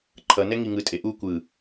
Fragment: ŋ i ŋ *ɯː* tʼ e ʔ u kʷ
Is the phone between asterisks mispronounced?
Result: yes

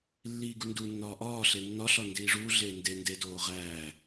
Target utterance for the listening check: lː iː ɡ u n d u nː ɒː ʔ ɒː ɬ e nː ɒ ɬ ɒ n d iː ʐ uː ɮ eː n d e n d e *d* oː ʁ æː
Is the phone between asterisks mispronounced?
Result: no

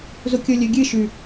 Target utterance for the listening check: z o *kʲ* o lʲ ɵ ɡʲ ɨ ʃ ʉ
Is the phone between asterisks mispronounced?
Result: no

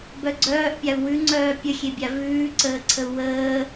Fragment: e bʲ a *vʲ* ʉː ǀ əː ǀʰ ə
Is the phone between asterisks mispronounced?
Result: yes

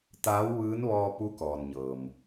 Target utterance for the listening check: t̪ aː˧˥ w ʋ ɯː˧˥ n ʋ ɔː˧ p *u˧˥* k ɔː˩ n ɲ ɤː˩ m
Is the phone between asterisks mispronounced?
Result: no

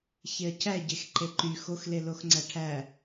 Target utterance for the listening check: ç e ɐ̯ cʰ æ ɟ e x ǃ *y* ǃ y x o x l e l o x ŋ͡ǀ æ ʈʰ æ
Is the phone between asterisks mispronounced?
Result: yes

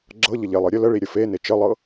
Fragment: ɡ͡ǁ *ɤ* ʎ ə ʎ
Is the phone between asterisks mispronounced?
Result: no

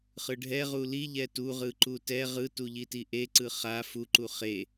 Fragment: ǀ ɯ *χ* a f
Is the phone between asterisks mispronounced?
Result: no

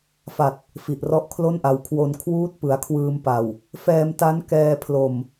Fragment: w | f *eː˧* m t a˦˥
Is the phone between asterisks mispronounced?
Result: yes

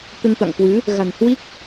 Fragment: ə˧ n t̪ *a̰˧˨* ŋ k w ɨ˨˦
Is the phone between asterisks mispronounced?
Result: no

